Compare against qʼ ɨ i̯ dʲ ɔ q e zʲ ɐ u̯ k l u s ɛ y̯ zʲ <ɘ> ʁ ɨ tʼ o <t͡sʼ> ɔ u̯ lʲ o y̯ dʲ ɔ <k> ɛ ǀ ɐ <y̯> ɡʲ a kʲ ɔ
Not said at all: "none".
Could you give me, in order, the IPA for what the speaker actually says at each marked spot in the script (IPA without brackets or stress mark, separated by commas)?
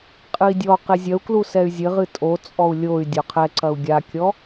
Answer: ɘ, t͡sʼ, qʰ, u̯